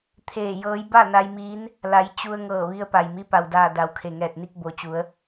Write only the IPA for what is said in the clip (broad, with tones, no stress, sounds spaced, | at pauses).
t̪ʰ eː˧˩ j ɤː˧˥ j b a˥˨ n a˧ j m iː˧˥ n | l a˩˧ j t͡ɕ u˧ ə̯ ŋ ɤː˧˩ ʋ i˧ ə̯ p a˩ j m i˧˥ p a˩ w d aː˧˩ d a˩ w kʰ e˩ ŋ ɛː˧˩ t̚ n i˥˨ k̚ b o˩ t͡ɕ u˩˧ ə̯